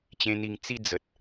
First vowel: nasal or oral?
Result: nasal